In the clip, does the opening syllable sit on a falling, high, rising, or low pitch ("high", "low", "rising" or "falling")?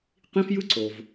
high